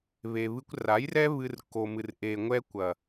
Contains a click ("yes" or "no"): no